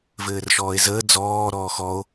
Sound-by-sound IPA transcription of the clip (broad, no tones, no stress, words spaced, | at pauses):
vɘːrʃɔːe̯zəː d͡zɔː ɾɔːxɔo̯